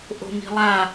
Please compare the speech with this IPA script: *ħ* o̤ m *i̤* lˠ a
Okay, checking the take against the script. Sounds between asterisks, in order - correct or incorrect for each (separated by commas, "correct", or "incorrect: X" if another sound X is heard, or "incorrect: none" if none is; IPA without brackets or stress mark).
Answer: incorrect: ʔ, correct